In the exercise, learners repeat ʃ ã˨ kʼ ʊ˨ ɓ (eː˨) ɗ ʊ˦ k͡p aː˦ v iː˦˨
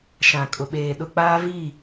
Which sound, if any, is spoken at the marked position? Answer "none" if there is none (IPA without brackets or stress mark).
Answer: eː˨